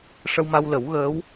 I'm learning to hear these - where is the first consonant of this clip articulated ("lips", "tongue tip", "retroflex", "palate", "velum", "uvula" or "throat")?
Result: retroflex